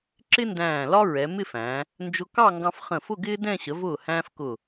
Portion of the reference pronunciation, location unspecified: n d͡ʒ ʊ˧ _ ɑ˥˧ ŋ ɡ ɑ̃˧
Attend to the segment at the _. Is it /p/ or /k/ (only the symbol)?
k